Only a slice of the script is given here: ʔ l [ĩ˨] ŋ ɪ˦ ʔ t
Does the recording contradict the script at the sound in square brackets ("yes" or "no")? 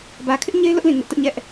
no